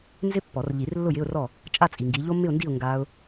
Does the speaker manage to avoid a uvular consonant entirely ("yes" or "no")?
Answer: yes